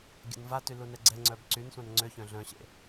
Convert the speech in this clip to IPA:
ɡʲ ə̰ n v a t y l u n ɛ ɡ͡ǀ ɛ ŋ͡ǀ œ b ǀ y n sʷ ã n ŋ͡ǀ ø ç œ̃ ɮ œ̃ ɕ ḛ

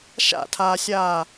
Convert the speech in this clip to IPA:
ʃ a̰ tʰ aː sʲ aː

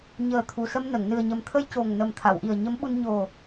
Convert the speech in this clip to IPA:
ɲ əː˨˩ t̪ʰ u˨˩ s ə˧ m n ə˨˩˨ ŋ n ɨ˨˩ ə̯ ɲ ə˨˩ m t̪ʰ ə˧ j c o˨˩ ŋ n ə˨˩ m t̪ʰ a˨˩˨ w ʔ i˨˩ ə̯ ɲ ə˧˥ m ɓ u˧ n ɲ o˨˩

